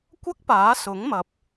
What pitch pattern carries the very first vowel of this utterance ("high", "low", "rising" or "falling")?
high